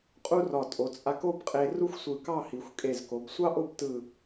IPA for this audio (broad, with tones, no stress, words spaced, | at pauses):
qʼu˥rɒ˧˩ tʼo˩˧t͡sʼa˧ko˥bqʼe˧ ru˥xʷsʷɯ˧˩kɑ˥˧ hi˩˧xʷkʼe˧˩zko˩˧b sʷɑ˥ʔo˥˧b tɯ˧˩